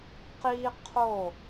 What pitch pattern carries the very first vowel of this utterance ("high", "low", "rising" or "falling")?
high